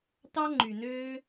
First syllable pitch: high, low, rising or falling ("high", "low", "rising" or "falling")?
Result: high